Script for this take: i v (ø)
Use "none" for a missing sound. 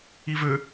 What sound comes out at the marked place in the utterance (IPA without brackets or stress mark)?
ø